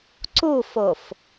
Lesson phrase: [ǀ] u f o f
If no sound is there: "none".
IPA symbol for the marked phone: ǀ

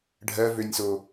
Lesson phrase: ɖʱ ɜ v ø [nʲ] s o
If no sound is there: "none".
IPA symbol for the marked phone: nʲ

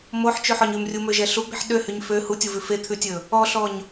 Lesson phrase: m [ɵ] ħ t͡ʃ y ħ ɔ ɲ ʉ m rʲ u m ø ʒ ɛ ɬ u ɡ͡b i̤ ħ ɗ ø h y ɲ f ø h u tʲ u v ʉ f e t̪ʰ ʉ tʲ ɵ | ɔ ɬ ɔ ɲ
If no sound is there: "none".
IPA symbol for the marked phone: o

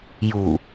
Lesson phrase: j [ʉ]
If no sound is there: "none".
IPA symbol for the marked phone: u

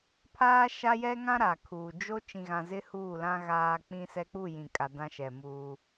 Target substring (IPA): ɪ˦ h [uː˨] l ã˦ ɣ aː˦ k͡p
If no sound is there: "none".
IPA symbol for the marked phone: uː˦˨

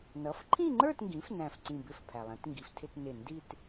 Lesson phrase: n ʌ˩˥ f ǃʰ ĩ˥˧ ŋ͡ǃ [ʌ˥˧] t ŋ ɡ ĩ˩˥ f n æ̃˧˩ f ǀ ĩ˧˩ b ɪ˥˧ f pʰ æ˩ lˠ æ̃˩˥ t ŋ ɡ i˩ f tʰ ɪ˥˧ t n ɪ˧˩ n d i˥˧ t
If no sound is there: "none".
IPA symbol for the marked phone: ə˞˥˧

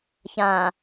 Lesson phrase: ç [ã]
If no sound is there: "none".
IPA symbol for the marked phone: ã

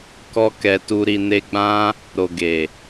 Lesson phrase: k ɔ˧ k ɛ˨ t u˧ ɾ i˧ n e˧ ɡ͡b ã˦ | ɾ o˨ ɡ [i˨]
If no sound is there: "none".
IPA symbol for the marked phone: e˨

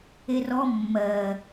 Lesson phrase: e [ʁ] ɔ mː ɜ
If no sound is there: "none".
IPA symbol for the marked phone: r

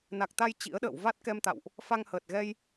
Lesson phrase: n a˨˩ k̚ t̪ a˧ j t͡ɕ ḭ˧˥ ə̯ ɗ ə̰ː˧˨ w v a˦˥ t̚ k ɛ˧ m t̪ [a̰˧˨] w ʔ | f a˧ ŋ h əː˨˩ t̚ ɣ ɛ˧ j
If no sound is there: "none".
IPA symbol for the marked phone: a̰˧˨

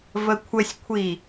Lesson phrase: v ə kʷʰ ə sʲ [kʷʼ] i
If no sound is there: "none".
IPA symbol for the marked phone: kʷʰ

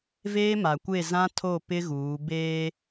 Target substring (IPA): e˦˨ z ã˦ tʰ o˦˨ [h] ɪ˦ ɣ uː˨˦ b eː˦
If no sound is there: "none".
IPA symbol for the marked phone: p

